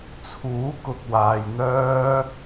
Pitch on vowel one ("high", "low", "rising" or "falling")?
rising